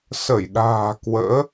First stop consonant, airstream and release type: implosive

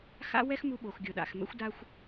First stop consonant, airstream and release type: implosive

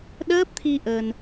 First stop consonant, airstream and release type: implosive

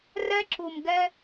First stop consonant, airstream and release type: click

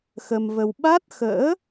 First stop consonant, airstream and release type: implosive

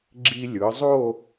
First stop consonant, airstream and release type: click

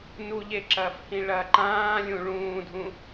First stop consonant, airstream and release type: click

